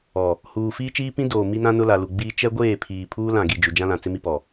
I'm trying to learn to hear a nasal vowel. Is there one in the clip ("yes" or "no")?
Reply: yes